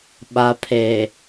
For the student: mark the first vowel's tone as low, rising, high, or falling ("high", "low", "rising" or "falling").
low